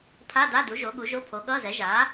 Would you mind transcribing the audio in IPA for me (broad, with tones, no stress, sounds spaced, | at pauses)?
pʰ a˧˥˧ d a˧˥˧ d u˩˥ ʒ o˩˥ ɠ u˩˥ ʒ o˧˥˧ pʰ o˩˥ ɠ ʌː˧˥˧ z ɛ˩˥ ʒ aː˩˥